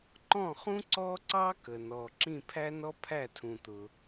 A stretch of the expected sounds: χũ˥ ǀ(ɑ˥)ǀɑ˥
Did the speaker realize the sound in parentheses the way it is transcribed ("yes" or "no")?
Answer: no